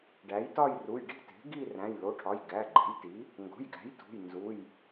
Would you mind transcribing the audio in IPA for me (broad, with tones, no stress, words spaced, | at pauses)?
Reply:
ɖæ˩˥jtɒ˥˧jru˩˧˩j ɖi̤˥˧te̤˩˥ ɡi˥˧ ræ̃˩˧˩jlo˩˧˩ʈʰɒ˩˧˩j ɡæ˩˧˩ ɡ͡ǃe̤˩˥jti˩˥ | ŋɡo̤˩˧˩jɡæ̤˩˥j tṳ˩˧˩j nzu˩˧˩j